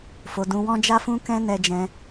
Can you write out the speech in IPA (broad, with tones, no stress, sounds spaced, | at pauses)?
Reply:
f o˧ d ũ˧ w ɔ̃˦ d͡ʒ a˦ f ũ˦ k ɛ̃˦ n ɛ˧ d͡ʒ ɛ̃˧